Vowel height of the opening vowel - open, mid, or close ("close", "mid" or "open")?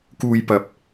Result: close